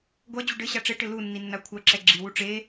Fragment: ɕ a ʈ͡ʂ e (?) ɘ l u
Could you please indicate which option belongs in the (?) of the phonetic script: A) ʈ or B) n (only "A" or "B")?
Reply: A